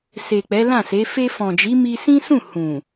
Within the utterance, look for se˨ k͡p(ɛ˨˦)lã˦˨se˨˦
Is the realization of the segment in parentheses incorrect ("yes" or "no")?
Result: no